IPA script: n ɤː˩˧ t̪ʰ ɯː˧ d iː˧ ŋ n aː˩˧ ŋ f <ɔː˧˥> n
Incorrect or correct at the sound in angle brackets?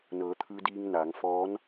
correct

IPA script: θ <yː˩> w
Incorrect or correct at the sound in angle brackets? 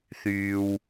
correct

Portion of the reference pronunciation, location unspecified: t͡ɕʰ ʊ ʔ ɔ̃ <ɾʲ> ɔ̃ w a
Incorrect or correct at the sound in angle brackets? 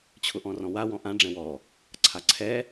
incorrect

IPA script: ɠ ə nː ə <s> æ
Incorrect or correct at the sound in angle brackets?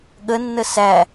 correct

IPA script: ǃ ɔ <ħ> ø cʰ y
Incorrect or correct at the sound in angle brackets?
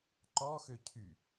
incorrect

